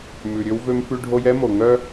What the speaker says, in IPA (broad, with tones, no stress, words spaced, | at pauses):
mʉ˨ɾʲø˦w vø˦mfʉ˦ɖʱo˦j ɛ˦ mo˨ŋœ˦